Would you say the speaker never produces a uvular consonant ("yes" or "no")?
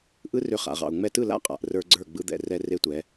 no